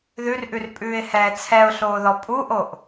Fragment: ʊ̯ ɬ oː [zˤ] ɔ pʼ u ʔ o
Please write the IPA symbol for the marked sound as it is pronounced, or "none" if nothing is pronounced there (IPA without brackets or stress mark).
ð